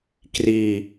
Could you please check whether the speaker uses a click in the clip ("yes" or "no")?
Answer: no